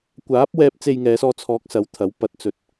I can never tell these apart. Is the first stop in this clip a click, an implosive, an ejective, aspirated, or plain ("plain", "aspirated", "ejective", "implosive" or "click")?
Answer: plain